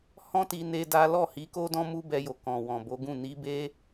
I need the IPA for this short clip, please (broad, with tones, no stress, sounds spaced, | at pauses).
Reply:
h ɔ̃˦ t i˧ n e˦ d a˦ l ɔ˦˨ h i˨˦ k o˦ d ɔ̃˦ m u˦ b ɛ˧ j o˨ k ɔ̃˨ w ɔ̃˨ b o˨˦ ɡ ũ˦˨ n i˨˦ b e˦